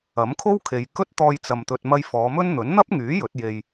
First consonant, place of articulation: labial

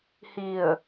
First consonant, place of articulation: glottal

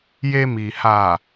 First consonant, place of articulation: palatal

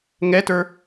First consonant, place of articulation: velar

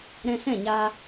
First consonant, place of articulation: alveolar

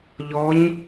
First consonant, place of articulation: palatal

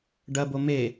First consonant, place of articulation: retroflex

